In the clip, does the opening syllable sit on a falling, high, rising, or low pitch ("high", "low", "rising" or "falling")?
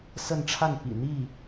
falling